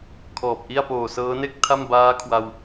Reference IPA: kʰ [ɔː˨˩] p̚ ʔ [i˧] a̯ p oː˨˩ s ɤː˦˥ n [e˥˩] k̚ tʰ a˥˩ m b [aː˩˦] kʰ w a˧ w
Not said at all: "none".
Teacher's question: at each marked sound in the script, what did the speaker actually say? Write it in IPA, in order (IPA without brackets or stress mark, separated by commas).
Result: ɔː˨˩, i˥˩, e˥˩, aː˦˥